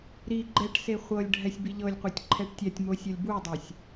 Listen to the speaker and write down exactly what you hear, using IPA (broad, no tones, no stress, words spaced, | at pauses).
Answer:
ɾi ɡ͡ǃɛʈse χʷɤlʲ ɖʱɛsʲbiʎɤlʲqʷɛtʲ ǃʰɛʈtʲatʲmo sʲɔlʲbudˤasʲ